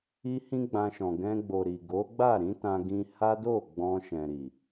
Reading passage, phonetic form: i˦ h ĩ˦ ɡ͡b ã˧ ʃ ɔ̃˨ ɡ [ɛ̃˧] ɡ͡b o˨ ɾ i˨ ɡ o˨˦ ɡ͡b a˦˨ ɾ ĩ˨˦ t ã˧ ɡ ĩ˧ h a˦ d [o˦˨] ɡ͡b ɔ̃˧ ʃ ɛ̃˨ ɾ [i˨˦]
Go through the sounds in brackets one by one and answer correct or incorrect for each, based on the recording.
correct, correct, incorrect

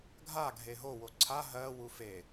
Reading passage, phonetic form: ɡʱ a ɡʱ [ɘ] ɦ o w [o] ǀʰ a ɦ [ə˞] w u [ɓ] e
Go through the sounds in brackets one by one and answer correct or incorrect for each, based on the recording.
incorrect, correct, incorrect, incorrect

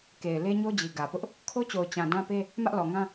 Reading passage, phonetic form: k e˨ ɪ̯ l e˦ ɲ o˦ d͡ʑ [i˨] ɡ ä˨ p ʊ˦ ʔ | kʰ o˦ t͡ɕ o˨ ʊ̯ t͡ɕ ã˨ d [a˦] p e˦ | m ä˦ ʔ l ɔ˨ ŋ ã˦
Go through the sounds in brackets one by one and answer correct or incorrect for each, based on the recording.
correct, incorrect

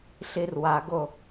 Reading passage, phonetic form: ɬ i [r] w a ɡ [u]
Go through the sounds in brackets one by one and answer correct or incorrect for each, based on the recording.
correct, incorrect

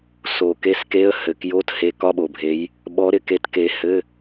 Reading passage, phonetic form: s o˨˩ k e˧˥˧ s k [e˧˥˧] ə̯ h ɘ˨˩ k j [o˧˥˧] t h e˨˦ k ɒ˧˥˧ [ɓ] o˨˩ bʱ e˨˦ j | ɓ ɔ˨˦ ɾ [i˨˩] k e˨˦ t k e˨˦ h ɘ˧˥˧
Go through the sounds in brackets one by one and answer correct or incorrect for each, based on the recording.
correct, correct, correct, incorrect

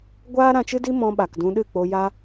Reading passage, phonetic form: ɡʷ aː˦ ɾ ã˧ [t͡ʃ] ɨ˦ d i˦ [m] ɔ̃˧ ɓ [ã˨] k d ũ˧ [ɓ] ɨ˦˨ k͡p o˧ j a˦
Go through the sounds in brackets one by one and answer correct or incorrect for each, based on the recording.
correct, correct, incorrect, incorrect

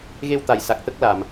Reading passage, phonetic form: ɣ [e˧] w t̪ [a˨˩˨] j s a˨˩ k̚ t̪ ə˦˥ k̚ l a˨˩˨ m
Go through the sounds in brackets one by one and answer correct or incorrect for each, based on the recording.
correct, correct

